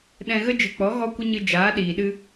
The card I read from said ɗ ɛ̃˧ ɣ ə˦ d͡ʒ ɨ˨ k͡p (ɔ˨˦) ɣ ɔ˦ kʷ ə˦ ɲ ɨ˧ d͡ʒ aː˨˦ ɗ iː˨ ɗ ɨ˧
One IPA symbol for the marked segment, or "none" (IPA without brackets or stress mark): ɔ˨˦